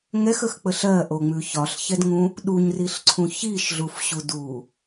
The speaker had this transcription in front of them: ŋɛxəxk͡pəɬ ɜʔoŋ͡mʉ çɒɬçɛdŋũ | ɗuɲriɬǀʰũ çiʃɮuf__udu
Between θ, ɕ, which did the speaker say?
ɕ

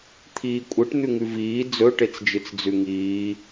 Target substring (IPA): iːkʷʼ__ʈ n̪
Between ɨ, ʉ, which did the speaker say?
ɨ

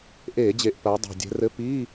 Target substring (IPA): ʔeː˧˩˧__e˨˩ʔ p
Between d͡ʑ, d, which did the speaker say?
d͡ʑ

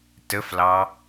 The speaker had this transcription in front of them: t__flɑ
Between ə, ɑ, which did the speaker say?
ə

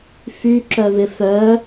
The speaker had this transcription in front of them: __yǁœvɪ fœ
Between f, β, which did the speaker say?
f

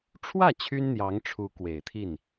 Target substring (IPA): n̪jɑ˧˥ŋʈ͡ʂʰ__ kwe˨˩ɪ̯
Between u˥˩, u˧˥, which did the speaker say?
u˧˥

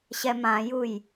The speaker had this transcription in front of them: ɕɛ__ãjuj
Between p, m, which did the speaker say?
m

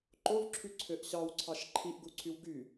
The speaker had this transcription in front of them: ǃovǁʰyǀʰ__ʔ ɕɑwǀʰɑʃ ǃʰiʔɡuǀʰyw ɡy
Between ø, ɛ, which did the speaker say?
ø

